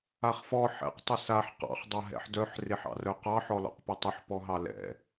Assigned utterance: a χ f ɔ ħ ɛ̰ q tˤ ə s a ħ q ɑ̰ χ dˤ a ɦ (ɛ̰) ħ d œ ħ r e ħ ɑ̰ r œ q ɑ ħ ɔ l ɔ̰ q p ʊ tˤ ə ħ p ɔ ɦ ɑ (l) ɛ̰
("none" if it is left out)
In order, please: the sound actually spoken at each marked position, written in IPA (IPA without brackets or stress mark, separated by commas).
ɛ̰, l